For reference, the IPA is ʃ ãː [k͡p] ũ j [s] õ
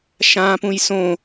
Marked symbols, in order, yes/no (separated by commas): no, yes